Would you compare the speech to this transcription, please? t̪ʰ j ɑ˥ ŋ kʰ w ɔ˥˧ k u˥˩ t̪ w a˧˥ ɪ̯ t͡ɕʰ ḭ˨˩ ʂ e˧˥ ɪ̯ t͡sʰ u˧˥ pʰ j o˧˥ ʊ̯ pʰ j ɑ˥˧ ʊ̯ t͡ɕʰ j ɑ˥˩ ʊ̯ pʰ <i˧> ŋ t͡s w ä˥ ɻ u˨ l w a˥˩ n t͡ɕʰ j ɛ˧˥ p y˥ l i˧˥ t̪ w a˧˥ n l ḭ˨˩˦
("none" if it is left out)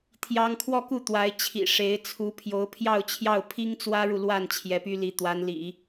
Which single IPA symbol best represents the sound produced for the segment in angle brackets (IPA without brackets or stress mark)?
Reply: i˥